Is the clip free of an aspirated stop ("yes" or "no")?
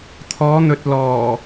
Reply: no